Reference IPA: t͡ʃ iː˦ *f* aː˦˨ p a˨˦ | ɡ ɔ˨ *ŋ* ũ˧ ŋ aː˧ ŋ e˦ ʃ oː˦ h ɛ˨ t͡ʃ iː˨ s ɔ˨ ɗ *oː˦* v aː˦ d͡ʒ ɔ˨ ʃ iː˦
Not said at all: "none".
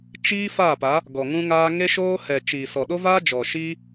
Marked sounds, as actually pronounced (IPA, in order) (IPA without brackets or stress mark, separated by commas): f, ŋ, o˦